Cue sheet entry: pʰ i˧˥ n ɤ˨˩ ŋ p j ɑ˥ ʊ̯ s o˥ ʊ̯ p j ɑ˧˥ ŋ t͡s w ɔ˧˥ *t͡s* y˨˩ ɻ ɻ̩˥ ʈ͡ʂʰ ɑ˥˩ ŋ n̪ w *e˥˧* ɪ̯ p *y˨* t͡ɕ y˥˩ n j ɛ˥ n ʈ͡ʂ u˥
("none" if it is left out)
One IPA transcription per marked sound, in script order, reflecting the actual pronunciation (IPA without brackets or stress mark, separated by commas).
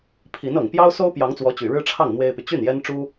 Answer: t͡ɕ, e˥, y˨